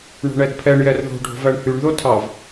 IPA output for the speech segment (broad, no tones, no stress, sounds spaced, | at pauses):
ɳ o̤ ɳ ɛ d pʰ ɛ ɳ j ɛ r ð o̤ ɖʱ o̤ v æ ɳ h y ɳ ð o tʰ ɑ v